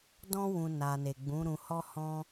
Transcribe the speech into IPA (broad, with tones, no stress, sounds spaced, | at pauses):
d ɔ̃˦ w ũ˧ n a˨ n e˨ ɡ͡b ũ˨˦ ɾ ũ˧ h ɔ˦ h ɔ̃˦